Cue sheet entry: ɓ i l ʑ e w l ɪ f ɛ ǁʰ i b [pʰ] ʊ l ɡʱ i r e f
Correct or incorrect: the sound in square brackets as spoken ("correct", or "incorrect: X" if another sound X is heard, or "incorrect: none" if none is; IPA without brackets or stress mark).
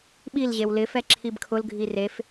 incorrect: kʰ